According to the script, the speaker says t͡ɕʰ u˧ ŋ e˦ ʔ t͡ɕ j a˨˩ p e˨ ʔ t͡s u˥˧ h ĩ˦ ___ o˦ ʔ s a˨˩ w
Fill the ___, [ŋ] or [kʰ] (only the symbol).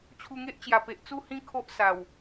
kʰ